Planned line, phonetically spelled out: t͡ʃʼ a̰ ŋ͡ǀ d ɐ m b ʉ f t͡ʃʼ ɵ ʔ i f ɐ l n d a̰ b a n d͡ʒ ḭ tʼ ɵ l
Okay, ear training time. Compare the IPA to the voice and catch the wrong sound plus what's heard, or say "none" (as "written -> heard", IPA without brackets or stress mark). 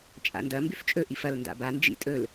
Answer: ŋ͡ǀ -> n